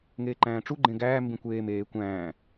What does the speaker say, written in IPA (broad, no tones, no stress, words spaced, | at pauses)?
ŋeːǃæ̃ːʈ͡ʂu ɡ͡ǃẽɡæː mbĩkʷeː meː kʷæ̃ː